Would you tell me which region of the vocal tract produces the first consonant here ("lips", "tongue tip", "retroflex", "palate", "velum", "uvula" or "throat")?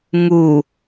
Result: velum